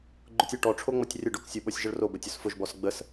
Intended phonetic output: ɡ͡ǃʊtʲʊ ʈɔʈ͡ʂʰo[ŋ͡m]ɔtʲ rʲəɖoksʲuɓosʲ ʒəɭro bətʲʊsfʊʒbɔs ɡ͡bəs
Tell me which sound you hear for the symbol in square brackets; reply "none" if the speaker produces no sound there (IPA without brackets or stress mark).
ŋ͡m